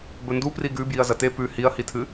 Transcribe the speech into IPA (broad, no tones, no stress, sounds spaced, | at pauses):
b ɵ n d u p r i ɡ ʉ b j i ɐ̯ z ɐ t e p ʉ h i ɐ̯ h i tʰ ɨ